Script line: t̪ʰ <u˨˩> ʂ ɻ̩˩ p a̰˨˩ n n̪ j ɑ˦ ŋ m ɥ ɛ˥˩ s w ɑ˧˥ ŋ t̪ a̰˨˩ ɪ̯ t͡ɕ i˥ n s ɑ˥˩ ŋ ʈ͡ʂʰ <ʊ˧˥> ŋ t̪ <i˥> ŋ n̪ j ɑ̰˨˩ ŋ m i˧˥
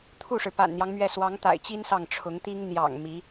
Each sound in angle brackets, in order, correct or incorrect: incorrect, correct, correct

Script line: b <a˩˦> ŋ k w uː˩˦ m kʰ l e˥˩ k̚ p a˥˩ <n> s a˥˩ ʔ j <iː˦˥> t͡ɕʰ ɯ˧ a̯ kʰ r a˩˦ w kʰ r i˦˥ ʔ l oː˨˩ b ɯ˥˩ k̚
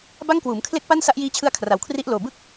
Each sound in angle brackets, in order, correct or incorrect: incorrect, correct, correct

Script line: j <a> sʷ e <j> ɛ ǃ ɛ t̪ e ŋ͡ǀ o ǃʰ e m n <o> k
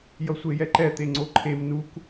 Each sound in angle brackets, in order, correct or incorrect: incorrect, correct, incorrect

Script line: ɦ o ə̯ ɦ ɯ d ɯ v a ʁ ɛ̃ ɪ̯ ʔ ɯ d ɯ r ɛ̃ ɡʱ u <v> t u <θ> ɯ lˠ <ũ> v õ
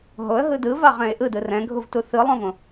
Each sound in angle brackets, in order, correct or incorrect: correct, correct, incorrect

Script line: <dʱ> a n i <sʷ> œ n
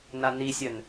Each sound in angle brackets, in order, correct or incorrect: incorrect, incorrect

